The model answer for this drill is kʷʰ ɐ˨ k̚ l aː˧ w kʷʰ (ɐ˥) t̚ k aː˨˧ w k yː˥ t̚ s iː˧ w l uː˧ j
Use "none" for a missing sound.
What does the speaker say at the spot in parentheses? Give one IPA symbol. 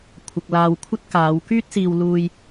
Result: ɐ˥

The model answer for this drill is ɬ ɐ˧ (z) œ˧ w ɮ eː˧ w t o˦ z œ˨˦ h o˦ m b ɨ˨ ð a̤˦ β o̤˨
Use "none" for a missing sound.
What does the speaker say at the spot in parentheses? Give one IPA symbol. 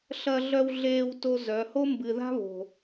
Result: ɮ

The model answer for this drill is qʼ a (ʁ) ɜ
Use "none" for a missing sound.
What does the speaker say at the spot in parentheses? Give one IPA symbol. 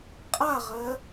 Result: ʁ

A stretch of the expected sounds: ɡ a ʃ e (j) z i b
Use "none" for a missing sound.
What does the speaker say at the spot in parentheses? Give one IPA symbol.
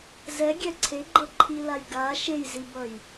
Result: j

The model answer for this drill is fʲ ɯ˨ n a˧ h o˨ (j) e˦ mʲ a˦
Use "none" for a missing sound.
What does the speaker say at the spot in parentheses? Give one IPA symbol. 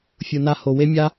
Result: w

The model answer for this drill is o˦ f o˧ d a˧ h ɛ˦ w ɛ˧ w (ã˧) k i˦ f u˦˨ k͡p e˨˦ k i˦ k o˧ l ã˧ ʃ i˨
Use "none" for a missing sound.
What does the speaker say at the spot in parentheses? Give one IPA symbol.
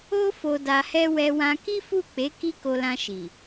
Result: ã˧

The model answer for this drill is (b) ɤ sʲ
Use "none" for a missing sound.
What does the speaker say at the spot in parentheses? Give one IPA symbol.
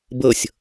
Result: b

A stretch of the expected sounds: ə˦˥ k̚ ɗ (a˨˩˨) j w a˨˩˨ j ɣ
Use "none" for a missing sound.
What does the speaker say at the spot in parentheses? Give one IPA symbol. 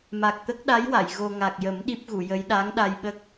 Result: a˧˥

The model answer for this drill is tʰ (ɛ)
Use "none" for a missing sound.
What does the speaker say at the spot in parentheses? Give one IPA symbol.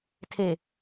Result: e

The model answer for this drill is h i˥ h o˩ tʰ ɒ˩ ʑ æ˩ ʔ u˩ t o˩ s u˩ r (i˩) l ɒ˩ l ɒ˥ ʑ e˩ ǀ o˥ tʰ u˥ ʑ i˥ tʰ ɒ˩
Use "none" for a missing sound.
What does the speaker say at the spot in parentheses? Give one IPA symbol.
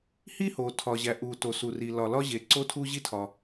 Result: i˩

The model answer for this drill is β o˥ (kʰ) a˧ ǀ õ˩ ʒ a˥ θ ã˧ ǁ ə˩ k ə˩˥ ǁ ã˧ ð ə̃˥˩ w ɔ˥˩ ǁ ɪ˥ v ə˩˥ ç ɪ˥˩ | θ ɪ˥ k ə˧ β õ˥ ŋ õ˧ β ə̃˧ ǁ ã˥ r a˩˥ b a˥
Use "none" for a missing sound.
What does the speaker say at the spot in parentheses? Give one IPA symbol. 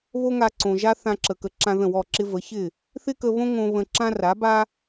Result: ŋ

